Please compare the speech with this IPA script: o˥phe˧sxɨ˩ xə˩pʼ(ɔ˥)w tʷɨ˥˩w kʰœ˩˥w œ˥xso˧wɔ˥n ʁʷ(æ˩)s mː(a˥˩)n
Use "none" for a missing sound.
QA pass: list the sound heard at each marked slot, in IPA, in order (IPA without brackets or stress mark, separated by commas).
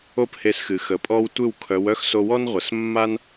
ɔ˥, ə˩, a˥